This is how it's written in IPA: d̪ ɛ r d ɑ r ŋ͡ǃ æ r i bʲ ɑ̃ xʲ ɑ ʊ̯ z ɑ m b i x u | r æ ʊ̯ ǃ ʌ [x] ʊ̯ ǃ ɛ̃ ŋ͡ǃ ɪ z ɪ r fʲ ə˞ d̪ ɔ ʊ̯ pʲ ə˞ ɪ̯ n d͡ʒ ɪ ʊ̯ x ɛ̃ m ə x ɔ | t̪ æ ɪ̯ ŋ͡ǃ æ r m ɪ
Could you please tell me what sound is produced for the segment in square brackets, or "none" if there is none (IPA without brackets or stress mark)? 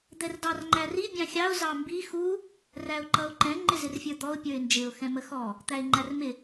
none